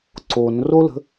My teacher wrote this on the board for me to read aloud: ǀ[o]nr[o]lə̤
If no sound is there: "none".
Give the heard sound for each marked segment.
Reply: o, o

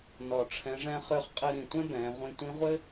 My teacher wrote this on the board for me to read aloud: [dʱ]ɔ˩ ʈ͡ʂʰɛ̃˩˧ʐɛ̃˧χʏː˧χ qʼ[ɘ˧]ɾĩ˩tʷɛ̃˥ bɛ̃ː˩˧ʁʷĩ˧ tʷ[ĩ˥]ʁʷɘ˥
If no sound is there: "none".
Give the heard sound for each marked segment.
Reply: n, ɘ˧, ĩ˧˥

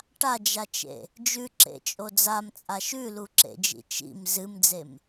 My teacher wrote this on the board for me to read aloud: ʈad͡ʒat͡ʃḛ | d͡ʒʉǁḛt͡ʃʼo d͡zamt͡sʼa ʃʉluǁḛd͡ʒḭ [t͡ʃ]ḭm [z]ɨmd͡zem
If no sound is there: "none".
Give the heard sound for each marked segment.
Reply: t͡ʃ, z

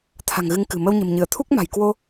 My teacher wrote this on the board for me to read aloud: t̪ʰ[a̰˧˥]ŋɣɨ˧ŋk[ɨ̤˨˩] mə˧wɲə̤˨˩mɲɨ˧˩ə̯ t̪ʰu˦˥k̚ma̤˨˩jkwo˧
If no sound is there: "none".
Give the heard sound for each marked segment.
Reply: a̤˨˩, ɨ̤˨˩

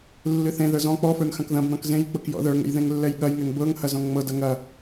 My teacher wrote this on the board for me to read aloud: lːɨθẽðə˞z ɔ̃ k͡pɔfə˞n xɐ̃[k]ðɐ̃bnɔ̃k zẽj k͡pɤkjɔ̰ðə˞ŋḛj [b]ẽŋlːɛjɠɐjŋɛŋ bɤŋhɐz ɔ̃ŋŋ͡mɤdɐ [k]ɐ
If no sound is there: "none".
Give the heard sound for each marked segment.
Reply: k, ð, ŋ

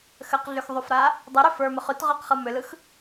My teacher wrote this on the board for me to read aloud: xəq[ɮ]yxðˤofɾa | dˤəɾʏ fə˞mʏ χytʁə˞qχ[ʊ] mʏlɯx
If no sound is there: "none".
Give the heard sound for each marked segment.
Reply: ɮ, ɯ

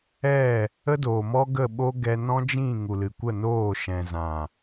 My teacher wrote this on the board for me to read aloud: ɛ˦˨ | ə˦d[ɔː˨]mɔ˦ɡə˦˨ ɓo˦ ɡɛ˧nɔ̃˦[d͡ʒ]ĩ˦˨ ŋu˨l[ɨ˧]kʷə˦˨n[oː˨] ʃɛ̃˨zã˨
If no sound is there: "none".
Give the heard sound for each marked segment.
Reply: oː˨, d͡ʒ, ɨ˨, oː˦˨

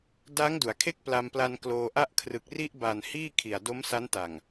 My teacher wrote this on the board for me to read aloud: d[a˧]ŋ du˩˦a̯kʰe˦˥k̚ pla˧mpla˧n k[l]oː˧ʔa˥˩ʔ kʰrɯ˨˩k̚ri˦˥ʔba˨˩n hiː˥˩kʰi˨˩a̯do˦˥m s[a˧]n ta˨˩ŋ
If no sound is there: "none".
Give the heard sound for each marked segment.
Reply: a˦˥, l, a˦˥

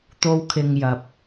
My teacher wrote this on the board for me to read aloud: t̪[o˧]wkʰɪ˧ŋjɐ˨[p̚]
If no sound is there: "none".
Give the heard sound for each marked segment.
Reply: o˥, p̚

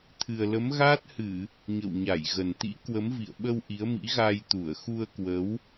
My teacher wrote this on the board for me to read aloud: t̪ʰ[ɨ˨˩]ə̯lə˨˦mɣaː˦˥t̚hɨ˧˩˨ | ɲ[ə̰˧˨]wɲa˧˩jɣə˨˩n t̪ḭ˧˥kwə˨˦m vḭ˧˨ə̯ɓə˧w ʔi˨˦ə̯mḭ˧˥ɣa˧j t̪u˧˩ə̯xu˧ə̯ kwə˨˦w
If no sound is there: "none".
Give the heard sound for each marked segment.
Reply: ɨ˨˩, ə̰˧˨

